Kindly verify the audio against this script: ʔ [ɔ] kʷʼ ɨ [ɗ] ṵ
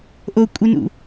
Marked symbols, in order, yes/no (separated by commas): no, no